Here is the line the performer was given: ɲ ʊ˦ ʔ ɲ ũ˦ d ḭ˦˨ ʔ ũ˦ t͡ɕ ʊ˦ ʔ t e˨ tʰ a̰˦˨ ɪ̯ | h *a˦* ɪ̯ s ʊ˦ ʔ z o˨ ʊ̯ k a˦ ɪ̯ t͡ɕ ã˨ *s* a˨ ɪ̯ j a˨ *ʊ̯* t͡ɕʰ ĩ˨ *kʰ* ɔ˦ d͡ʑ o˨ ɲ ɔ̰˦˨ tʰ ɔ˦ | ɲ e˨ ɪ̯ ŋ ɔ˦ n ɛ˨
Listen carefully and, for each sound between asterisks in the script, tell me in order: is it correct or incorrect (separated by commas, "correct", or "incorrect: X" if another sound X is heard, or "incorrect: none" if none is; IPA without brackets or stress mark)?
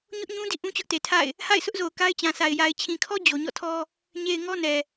incorrect: a̰˦˨, correct, incorrect: ɪ̯, correct